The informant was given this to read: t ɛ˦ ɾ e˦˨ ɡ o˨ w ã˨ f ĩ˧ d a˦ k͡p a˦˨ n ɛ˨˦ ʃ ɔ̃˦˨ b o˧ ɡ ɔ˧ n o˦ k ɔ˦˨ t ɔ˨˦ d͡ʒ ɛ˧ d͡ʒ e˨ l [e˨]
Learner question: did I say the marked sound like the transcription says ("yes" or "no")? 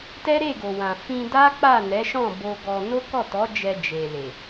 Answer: yes